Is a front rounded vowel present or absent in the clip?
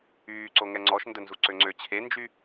present